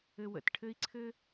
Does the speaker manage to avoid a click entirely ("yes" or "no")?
no